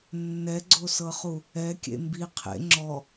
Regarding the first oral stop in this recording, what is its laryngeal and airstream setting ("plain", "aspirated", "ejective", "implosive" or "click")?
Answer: click